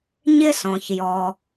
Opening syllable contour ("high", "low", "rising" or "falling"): high